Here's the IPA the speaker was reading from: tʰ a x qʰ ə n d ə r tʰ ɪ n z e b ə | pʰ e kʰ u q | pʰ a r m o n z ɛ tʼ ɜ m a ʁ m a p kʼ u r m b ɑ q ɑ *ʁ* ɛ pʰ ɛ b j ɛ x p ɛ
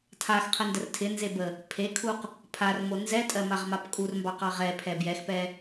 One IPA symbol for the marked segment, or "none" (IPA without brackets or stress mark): ʁ